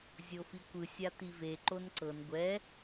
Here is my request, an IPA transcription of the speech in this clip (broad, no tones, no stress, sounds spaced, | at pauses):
zʲ o f i kʷ ɯ sʲ a t̪ i v e ǃ o n ǀ ɤ n ɡʷ ɛ